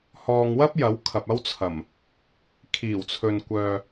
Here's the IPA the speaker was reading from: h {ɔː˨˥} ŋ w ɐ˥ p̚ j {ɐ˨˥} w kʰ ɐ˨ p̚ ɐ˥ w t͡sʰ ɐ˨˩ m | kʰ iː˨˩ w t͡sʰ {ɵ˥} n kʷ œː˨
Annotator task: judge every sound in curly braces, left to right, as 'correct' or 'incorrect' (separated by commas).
incorrect, correct, incorrect